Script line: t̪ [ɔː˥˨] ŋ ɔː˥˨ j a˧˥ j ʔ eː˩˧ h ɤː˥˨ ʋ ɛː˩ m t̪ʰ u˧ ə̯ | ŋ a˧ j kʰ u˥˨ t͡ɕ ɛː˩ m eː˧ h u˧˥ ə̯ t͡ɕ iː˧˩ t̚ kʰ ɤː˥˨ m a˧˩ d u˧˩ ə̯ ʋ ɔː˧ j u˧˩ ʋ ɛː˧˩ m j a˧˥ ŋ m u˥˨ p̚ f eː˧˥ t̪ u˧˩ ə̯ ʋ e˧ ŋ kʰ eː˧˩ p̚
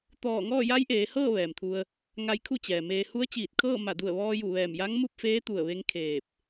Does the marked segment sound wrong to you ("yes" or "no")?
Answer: yes